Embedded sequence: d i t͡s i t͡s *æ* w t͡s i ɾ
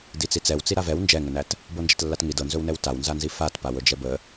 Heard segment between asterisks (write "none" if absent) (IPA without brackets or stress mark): ɛ